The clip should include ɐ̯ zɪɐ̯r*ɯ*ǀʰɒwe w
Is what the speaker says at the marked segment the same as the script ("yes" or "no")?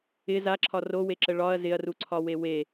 no